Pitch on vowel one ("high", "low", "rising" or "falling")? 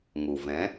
low